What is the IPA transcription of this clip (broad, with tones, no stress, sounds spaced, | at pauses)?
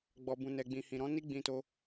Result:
ɡ͡b ɔ˨ b ũ˨ n ɛ˨ ɡ͡b ĩ˨ h ĩ˨ ɾ ɔ̃˧ n i˦ ɡ͡b ĩ˧ t o˧